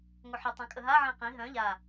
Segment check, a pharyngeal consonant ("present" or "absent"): present